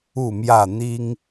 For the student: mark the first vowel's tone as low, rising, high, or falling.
falling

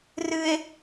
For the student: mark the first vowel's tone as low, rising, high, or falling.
high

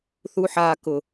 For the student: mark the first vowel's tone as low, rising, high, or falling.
high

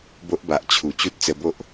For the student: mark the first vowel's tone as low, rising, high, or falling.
high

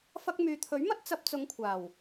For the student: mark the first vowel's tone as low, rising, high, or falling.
high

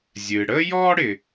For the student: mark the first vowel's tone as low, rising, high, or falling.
low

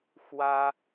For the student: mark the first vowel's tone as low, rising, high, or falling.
high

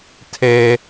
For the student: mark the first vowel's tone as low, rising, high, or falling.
low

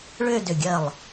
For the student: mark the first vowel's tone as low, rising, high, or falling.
falling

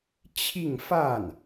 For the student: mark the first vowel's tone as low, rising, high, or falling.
falling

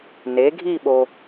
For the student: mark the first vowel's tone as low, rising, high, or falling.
rising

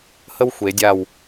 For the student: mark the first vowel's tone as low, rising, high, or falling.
high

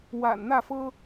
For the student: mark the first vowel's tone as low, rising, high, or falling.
low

